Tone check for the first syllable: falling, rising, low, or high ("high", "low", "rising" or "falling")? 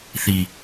high